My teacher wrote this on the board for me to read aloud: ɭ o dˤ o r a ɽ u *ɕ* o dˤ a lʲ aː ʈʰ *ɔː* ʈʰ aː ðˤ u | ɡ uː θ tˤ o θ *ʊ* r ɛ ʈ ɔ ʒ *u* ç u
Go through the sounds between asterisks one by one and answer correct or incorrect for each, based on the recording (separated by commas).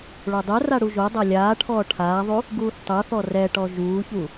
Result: incorrect, correct, incorrect, incorrect